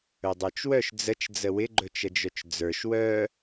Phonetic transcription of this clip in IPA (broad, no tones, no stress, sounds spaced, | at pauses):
ɵ dˤ ə˞ t͡ʃ w œ ʃ d͡z ə t͡ʃ d͡z ə w ɪ ɡ͡ǃ ɵ t͡ʃ ə d͡ʒ œ t͡ʃ d͡z ə˞ ʃ w œ